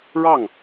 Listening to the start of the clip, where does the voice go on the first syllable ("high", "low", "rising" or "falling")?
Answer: falling